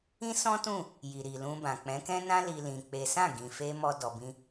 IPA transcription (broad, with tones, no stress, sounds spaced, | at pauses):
ĩ˦ s ɔ̃˦ t ũ˦˨ | j i˨ ɾ i˨ l ũ˧ b ã˨ k͡p ɛ̃˨˦ k ɛ̃˦ n ã˦ l i˦ l ĩ˧ k͡p e˦ s ã˦˨ ɡ ĩ˨ f e˧ m ɔ˦ d ɔ˧ b ĩ˦